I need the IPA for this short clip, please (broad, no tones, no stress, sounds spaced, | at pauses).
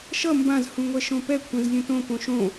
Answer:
ʃ ʌ m b ã z h ũ ŋʷ ɛ ʃ õ p ɛ kʷʰ ɛ̃ z lʲ ũ t õ p õ ʃ õ